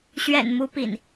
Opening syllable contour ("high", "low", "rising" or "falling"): low